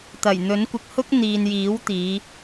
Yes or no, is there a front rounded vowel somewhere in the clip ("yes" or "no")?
no